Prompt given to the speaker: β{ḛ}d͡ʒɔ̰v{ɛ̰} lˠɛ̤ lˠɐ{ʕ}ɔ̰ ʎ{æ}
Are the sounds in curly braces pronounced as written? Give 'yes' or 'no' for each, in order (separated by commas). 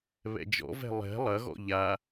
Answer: no, no, no, no